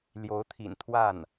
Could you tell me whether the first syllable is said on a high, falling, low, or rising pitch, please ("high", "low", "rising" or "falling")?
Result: rising